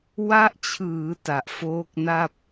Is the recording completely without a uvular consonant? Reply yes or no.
yes